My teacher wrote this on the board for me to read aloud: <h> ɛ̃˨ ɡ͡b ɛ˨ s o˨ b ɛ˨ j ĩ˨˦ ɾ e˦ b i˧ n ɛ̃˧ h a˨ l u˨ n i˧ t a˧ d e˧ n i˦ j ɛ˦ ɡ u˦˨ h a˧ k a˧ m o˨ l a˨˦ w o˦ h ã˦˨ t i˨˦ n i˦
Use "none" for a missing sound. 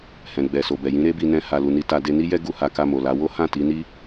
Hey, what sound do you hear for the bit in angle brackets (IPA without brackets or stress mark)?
h